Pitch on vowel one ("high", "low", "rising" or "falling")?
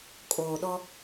low